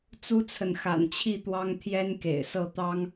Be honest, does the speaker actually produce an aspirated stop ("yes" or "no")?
yes